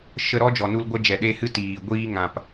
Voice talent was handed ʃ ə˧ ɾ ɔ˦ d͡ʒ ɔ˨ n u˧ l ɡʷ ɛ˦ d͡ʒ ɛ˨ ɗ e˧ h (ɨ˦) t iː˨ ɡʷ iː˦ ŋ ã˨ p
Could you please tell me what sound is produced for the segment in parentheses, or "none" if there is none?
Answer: ɨ˦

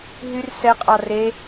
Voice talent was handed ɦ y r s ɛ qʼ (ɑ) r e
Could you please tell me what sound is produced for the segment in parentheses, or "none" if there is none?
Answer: ɑ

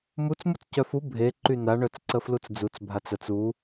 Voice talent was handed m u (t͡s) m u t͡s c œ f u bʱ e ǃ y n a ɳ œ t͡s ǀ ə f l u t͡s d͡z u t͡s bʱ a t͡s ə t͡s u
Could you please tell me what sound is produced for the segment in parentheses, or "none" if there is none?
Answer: t͡s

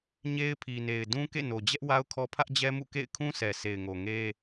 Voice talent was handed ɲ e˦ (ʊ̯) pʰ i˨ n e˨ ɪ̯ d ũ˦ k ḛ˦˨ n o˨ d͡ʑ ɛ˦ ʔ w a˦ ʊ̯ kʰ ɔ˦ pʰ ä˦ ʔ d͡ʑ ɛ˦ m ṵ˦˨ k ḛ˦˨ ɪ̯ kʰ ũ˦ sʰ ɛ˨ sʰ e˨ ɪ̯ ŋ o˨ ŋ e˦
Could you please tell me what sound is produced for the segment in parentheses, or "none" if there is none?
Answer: ɪ̯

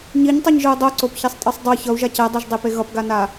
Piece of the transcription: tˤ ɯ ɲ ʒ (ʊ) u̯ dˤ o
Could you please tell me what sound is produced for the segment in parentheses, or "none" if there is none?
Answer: ɯ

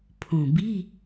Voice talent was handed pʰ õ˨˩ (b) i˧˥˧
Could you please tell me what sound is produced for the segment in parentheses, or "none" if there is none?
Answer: b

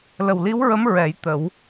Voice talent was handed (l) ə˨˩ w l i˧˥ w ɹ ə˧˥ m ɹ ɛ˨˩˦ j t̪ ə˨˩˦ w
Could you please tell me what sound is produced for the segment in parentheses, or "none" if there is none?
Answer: l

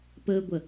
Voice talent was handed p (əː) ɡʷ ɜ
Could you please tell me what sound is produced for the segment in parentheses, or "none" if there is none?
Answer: əː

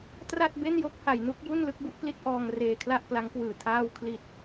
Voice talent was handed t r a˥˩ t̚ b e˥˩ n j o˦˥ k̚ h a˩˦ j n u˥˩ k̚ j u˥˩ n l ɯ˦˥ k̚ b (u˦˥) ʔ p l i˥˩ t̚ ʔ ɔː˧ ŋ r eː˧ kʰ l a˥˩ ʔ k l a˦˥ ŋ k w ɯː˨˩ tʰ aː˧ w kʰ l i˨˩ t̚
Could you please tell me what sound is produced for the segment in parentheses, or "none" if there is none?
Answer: u˦˥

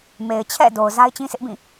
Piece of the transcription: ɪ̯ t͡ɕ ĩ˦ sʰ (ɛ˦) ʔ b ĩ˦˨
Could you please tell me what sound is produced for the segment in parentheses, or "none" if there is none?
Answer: ɪ˦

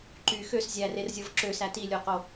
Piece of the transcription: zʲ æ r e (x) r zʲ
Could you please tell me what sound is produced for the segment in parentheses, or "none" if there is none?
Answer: none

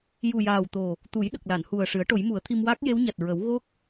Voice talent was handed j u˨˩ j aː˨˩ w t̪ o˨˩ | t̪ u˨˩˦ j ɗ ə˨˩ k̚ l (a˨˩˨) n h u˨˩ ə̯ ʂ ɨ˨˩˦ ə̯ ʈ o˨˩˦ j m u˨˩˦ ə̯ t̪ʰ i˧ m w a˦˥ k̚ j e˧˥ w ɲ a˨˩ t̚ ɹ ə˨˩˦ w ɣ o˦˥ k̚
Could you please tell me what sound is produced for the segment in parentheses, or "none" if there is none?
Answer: a˨˩˨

